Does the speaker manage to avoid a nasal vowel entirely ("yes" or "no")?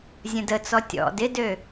no